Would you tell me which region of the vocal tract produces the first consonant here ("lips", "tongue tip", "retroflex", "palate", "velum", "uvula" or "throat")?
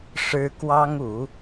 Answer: retroflex